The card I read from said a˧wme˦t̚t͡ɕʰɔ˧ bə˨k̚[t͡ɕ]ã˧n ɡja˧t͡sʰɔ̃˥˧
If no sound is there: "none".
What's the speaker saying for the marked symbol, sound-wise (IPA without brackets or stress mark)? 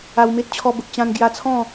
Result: t͡ɕ